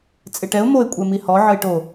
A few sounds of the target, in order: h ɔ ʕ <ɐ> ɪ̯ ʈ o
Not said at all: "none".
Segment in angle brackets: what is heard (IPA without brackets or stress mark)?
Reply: ə